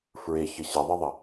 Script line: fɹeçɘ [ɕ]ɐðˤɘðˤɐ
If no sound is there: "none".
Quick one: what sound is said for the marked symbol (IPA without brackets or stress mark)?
ɕ